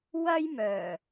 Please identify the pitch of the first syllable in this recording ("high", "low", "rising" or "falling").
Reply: high